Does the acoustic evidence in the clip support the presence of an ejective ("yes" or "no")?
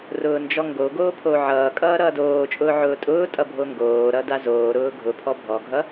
yes